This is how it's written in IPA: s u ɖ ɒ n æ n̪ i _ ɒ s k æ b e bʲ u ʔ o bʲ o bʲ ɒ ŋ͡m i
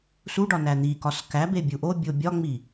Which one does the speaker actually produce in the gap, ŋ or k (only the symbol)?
k